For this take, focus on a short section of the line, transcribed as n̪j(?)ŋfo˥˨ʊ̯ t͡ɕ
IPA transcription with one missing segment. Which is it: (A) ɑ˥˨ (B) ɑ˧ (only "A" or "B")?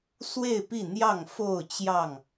A